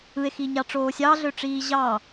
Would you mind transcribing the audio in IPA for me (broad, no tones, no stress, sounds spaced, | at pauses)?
ɯ e̯ x iː ɲ ɑ ʈ͡ʂ oː sʲ ɑ ɮ ø ʈ͡ʂ iː ʑ ɑ